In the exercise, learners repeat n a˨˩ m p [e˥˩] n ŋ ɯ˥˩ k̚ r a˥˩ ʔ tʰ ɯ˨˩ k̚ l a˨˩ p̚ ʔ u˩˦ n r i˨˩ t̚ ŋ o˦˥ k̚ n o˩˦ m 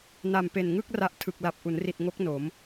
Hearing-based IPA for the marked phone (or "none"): e˨˩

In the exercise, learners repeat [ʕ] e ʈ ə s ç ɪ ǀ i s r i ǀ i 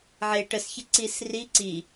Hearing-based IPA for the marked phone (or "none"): ʕ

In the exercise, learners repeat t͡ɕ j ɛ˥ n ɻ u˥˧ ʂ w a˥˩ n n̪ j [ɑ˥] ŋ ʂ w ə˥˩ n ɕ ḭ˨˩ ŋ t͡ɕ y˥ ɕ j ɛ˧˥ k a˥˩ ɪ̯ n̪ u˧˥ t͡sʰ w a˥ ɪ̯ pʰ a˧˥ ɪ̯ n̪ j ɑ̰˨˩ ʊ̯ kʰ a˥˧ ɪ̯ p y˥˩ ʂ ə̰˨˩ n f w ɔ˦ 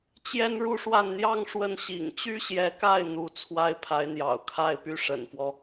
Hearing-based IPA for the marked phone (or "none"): ɑ˥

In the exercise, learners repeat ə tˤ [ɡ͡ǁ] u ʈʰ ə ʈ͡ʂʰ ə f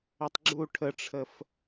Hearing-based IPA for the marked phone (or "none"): ɡ͡ǁ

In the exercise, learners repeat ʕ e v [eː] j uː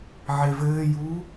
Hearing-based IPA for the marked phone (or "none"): ɘː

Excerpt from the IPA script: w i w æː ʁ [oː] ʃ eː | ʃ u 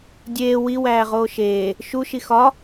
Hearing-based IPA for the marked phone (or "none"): oː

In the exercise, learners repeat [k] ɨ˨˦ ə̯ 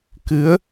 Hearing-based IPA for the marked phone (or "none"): k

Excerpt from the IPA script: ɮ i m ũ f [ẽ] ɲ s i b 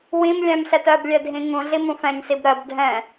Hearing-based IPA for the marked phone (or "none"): ɛ̃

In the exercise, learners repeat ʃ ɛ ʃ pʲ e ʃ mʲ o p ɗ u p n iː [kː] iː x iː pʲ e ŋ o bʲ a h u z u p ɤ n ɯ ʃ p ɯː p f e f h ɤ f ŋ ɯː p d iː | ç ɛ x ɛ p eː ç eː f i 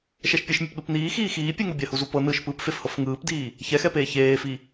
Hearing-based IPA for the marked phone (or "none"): x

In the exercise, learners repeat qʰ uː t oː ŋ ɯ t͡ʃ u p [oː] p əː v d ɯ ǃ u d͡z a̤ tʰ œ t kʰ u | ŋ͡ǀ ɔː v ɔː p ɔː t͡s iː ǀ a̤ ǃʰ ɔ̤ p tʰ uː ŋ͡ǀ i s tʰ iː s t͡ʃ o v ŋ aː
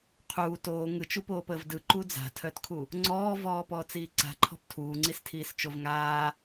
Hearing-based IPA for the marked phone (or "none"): oː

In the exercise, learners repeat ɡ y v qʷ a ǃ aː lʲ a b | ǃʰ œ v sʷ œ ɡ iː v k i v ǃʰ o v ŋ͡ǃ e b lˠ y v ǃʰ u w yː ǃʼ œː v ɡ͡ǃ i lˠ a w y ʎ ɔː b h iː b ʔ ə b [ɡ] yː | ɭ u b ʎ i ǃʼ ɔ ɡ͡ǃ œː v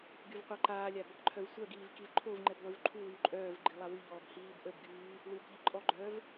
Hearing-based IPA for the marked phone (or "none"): ɡ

